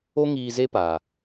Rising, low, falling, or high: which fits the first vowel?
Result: high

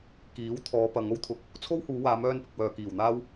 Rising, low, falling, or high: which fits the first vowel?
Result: rising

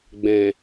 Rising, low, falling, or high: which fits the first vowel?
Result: low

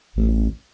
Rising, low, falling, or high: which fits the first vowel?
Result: low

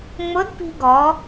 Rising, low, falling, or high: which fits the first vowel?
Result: rising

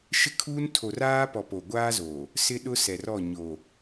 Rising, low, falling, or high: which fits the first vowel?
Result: high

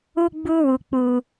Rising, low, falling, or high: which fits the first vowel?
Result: high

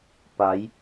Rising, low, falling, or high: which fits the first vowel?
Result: rising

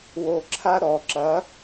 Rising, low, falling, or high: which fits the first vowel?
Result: low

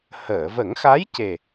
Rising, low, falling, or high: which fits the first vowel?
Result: low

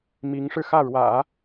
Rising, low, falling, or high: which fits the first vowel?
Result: rising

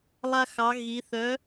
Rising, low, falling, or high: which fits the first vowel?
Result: high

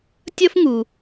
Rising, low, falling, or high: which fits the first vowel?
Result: high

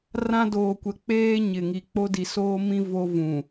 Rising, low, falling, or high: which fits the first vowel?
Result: high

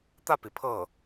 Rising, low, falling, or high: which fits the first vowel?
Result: falling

